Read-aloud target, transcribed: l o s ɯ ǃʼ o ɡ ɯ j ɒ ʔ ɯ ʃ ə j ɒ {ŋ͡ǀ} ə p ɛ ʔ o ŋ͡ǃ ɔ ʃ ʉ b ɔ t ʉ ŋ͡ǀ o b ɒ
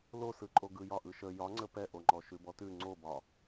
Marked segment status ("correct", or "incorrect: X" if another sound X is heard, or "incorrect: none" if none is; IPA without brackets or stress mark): correct